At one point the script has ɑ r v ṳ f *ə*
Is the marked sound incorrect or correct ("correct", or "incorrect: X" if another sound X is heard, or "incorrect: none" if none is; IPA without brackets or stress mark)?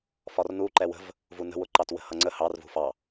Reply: incorrect: ɑ